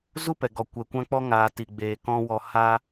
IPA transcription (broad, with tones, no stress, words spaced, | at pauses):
zu˦pɛ˨ɡɔ˨ kʷɛ˨ kʷã˧k͡pɔ˧ŋaː˨ ti˨ɡ͡beː˨kɔ̃˧ wɔ˨ ha˧